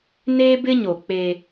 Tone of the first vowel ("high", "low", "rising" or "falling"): high